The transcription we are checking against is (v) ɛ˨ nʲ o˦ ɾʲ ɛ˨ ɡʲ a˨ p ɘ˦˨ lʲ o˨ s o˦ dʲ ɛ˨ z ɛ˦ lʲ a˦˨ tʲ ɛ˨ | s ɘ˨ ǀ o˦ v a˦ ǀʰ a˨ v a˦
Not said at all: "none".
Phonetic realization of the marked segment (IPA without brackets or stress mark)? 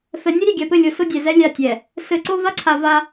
f